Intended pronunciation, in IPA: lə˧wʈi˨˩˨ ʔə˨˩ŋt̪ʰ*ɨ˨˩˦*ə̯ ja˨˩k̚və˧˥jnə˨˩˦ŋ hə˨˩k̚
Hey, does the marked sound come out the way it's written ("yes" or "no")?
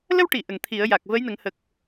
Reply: no